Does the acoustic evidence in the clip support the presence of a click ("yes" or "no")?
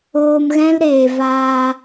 no